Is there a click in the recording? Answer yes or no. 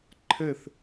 yes